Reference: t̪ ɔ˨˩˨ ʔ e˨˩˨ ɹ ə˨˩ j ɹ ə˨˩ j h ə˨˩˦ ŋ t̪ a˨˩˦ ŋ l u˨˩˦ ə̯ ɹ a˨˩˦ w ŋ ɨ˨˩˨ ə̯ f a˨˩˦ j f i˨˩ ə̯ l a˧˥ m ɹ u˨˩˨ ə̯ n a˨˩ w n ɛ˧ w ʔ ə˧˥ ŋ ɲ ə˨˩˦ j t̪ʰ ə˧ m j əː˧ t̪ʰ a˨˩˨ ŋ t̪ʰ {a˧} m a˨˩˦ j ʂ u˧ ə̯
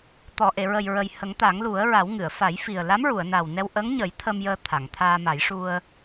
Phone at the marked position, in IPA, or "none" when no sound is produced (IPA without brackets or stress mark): aː˧